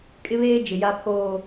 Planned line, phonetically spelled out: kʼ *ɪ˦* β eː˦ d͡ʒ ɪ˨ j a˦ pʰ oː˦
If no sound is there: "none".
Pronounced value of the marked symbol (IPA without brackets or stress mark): ɪ˦